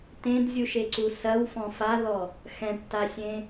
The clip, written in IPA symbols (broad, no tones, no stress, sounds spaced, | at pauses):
t ẽ d zʲ u ʃ e ǀ u s ɐ w f ɔ̃ f a ð ɔ | x ɛ̃ ʈ t a sʲ ẽ